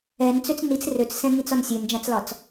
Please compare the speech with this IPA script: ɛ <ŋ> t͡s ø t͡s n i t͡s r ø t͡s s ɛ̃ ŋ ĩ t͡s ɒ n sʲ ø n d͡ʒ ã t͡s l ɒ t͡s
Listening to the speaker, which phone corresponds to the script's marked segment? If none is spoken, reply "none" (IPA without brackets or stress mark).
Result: n